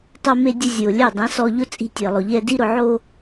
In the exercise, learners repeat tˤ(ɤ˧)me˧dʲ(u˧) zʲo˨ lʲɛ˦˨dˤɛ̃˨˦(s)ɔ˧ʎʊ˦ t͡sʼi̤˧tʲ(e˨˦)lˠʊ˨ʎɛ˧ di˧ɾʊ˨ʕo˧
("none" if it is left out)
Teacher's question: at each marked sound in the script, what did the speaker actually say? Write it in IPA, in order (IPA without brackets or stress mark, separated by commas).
o˧, ʊ˧, s, e˨